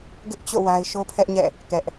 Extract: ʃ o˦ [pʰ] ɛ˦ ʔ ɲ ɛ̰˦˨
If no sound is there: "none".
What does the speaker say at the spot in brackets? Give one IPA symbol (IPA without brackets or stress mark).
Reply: pʰ